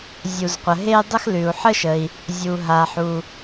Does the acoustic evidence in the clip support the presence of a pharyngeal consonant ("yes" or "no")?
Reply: yes